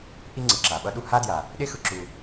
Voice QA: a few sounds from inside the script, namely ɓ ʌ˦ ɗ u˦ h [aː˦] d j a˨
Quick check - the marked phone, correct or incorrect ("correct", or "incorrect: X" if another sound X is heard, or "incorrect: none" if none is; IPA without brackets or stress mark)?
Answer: incorrect: a˦